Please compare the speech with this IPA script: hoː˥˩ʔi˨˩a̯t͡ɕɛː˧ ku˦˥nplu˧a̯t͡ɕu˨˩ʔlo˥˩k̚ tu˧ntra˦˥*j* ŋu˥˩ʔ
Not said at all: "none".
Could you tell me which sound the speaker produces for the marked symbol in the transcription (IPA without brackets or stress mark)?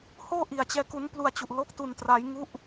j